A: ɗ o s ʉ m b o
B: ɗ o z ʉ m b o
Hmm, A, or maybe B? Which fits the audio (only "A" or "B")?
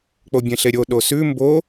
A